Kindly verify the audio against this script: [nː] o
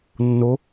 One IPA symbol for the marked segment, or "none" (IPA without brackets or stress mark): nː